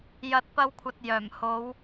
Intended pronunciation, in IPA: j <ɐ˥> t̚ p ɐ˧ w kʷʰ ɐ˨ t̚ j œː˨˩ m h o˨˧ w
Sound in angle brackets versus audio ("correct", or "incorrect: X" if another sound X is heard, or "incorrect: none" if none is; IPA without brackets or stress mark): incorrect: ɐ˨